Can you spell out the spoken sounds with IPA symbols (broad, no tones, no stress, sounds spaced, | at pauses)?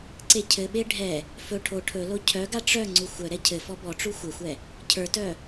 ǀ e cʰ ɘ ɓ e ɖʱ ɛ | f ɵ ʈʰ o ʈʰ ɵ l o cʰ œ ɡ a ʈ͡ʂ œ ŋ͡ǀ u xʷ œ ɾ ɛ cʰ ɘ f ɔ b ɔ ʈ͡ʂ u xʷ ɘ xʷ ɛ | cʰ ə˞ t œ